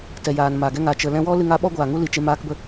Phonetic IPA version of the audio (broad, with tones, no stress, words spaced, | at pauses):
tɛ˨jaː˨n maː˨ɡɛ˦ ŋa˨ t͡ʃə˨lɛ̃˧wɔ˦ lɨ˧ŋa˨˦ɓɔ˦ ɡʷaː˨ŋu˦li˨t͡ʃe˧ maː˧kbə˧